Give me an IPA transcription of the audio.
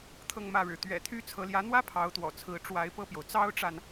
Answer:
t̪ʰ ɤ˥˧ ŋ m ä˥˩ ɻ ɻ̩˩ t̪ ɥ ɛ̰˨˩ t̪ʰ y˥ t͡sʰ ɤ˧˥ l j ä˧˥ n̪ w ä˥ pʰ ɑ˧˥ ʊ̯ t̪ w ɔ̰˨˩ t͡sʰ ɹ̩˧˥ ʈ͡ʂ w a˧˥ ɪ̯ p ɤ˥˩ p j o˩ ʊ̯ t͡s ɑ˥ ʊ̯ ʈ͡ʂ a˨ n

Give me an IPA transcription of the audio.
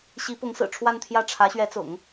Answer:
ɕ i˧˥ p ʊ˧˥ ŋ s ɹ̩˨˩ ʈ͡ʂʰ w a˥˧ n t̪ʰ j ä˥˩ ʈ͡ʂʰ ä˧˥ ɕ ɥ ɛ˧˥ t͡s ʊ̰˨˩˦ ŋ

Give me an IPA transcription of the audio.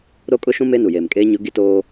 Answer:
ɾ o˦ kʼ ʊ˦ ʃ ũ˦ m e˦ n u˨ j eː˨ m kʼ eː˦ ɲ ʊ˦ ɡ i˦ t oː˦

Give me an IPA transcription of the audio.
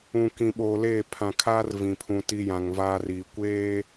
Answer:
ũ˨ k ĩ˨ ɓ oː˨ l eː˦˨ pʰ ã˨ kʰ aː˦ r v ĩ˨ pʰ ũ˨ t i˦ j ã˨ ŋ v aː˦ r iː˨ kʷ eː˦

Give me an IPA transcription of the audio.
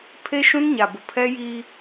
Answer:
pʰ e˦ ʃ ũ˦ n ɲ a˨ b ʊ˨ pʰ ɛ˦ j i˦

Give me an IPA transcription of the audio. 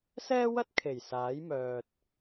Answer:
s ɛː˥ w ɐ˥ t̚ kʰ e˨˩ j s aː˨˥ j m œː˨ t̚

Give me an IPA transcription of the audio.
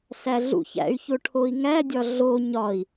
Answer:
s æ ɮ ṵ ç æ̰ y̯ ç o ʈʰ o i̯ ŋ æ dʲ ɒ ɮ o ɲ ɒ i̯

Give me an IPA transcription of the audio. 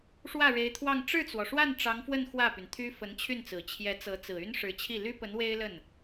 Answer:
ʂ w ä˥˩ ɻ e˧˥ ɪ̯ t̪ʰ w ɑ˥˧ ŋ ʈ͡ʂ ɻ̩˥˩ t͡s w ɔ˩ ʂ w a˥˩ n ʈ͡ʂ ɑ˧˥ ŋ f w ə˥˧ n x w ä˥˩ p y˩ n t̪ʰ y˥ f ə˧˥ n t͡ɕʰ y˥˩ n t͡s ɹ̩˨˩ t͡ɕʰ j ɛ˧˥ t͡s ɤ˧˥ t͡s ɹ̩˨˩ y˥ n ʂ ɻ̩˧˥ t͡ɕʰ i˥˩ l y˥ p ə˧˥ n w e˥ ɪ̯ l ə˥˩ n

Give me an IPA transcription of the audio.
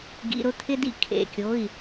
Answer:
ɡ ḭ˩˧˩ ɾ ʊ˥˩ t̪ʰ ɪ˧ d ḭ˧˩ kʰ ḛ˩˧˩ kʲ o˩˧˩ i̯

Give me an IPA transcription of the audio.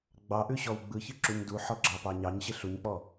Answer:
ɡ͡b ɑ ʔ ʉ ɕ ɔ w ɡ͡b ɯ ç ɯ ǁ u ɲ d u ħ ɔ ɡ͡ǁ ɑ p ɑ ɲ ɑ ɲ ɕ ɪ ɬ u ɲ k͡p ɔ

